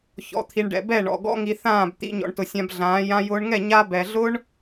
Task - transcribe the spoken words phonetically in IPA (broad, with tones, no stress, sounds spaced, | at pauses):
ç ɔ̰˨ t̪ʰ i˨ ɳ ɖ ɛ̰˨ b ɛ˦˨ ɳ ɔ̰˨ ɡ ɔ̰˧ ŋ i˨ θ ãː˦˨ b t̪ ḭ˧ ɲ ɔ̰˨ ɳ t ʊ˨ sʲ ã˧ b ɮ ãː˨˦ j ã˧ j ʊː˧ ɳ ŋ ɛ˦˨ ɲ a˧ b ɛ˨ ɮ ʊ˦ ɳ